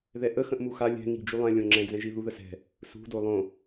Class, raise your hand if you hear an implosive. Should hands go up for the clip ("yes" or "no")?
no